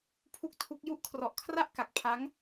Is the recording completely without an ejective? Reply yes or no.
yes